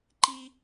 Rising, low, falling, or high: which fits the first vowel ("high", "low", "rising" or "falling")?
high